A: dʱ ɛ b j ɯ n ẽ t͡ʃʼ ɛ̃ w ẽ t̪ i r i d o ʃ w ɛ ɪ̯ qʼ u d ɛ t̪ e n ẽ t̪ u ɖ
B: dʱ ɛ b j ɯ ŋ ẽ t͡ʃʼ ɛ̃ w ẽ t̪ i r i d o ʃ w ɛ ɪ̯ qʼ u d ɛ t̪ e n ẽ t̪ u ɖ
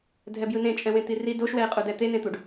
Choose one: A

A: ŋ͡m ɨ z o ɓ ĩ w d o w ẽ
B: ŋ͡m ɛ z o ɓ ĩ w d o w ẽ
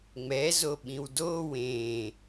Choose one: B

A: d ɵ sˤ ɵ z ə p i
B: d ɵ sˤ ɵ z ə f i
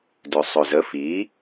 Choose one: B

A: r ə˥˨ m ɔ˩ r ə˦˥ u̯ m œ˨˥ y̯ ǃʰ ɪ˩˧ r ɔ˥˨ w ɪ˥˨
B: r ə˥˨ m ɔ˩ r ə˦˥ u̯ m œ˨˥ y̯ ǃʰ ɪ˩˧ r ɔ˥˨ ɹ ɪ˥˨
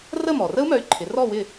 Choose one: A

